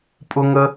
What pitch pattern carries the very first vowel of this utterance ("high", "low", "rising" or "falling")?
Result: high